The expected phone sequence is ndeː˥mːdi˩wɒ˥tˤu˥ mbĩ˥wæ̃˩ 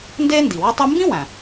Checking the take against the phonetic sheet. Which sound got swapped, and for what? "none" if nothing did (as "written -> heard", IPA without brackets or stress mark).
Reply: mː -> n